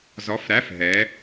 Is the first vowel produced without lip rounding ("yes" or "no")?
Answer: no